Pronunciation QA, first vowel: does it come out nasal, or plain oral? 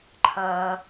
oral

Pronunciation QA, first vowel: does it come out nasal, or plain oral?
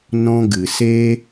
nasal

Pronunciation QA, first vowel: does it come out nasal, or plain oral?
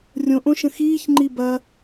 nasal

